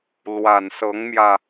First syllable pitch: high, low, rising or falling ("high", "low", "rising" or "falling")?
low